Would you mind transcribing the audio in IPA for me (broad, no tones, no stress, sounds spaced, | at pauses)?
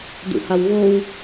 d ṵ h a w ɣ o w